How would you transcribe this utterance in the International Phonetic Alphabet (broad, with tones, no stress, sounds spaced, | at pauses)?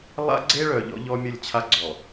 lˠ a̰˦ ɡ͡ǀ e˦ ɭ œ˨ ʎ ɔ̰˦ ʎ ɔ˦ mʲ ə˦˨ lʲ t͡ɕʰ a˦ ɡ͡ǀ ɔ˨